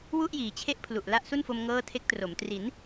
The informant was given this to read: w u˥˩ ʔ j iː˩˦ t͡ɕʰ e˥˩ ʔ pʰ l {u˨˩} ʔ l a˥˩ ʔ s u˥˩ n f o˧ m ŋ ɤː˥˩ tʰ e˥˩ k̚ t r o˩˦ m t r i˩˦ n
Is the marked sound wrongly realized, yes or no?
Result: no